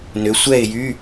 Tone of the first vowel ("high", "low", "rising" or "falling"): rising